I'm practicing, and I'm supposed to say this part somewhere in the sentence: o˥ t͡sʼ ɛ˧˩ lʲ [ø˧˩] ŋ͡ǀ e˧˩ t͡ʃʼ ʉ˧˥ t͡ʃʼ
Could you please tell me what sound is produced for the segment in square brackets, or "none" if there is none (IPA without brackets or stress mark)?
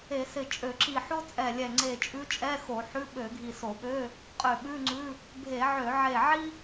ɛ˧˩